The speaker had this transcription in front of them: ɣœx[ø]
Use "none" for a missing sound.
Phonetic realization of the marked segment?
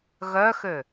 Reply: ø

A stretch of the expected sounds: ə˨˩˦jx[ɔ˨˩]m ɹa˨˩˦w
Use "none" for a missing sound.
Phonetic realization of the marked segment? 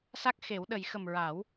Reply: ə˨˩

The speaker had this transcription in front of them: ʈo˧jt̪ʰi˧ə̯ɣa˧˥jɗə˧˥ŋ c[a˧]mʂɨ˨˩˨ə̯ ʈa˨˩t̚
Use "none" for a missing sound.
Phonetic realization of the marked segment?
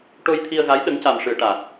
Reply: a˨˩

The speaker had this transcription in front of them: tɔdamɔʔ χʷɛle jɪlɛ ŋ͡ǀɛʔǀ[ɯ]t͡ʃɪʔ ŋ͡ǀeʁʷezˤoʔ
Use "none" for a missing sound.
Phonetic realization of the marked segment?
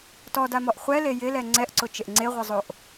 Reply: ʊ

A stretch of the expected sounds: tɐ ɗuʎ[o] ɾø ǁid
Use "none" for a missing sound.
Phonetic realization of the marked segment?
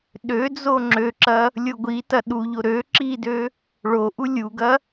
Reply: o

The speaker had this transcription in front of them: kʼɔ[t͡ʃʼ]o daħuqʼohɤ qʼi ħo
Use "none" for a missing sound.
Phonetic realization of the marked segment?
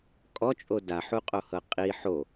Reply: t͡ʃʼ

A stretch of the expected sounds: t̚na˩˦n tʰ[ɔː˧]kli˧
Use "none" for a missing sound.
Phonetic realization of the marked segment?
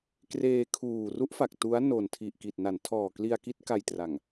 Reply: ɔː˨˩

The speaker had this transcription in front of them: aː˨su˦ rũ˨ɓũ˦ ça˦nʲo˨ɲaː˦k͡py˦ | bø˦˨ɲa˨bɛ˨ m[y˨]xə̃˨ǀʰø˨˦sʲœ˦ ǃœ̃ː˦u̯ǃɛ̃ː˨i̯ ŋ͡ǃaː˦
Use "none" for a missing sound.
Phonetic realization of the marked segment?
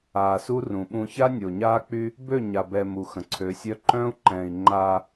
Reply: u˨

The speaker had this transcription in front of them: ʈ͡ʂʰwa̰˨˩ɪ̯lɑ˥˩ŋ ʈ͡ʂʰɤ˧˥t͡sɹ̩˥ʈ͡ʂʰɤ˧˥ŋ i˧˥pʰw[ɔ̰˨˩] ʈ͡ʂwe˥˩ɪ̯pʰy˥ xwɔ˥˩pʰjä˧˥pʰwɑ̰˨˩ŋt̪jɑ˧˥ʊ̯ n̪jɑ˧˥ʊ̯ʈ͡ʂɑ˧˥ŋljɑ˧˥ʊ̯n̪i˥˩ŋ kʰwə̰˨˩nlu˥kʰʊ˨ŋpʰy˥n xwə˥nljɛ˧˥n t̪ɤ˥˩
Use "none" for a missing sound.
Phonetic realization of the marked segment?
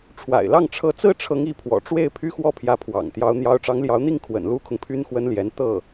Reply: ɔ̰˨˩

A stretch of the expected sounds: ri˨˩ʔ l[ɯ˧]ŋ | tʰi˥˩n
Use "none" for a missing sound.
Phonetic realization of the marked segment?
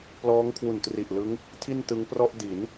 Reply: ɯ˦˥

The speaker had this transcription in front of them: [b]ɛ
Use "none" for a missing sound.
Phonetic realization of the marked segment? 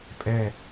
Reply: pʼ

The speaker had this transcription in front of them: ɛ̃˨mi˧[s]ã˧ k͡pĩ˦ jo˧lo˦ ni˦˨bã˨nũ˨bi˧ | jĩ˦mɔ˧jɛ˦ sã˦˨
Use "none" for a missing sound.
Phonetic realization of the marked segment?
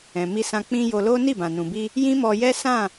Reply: s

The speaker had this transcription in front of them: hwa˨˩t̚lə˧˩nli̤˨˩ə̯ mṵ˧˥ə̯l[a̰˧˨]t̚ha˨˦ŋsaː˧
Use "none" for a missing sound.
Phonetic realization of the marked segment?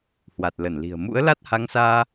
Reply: a˦˥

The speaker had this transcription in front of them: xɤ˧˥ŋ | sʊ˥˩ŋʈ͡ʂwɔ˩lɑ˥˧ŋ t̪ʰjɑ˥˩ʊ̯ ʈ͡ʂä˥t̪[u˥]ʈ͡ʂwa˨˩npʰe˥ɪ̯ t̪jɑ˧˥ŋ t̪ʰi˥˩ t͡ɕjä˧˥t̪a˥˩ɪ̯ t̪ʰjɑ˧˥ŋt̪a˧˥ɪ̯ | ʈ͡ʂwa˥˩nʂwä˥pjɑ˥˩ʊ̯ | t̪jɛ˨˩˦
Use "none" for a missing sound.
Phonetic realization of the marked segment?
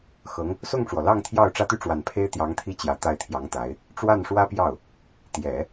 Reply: y˥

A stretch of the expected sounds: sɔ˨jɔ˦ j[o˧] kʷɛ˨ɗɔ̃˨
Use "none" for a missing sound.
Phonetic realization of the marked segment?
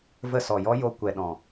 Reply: o˧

